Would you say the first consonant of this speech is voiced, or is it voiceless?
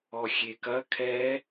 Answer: voiceless